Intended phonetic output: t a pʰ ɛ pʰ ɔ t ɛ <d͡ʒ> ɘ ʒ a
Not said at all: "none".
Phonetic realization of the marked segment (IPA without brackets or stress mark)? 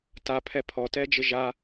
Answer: d͡ʒ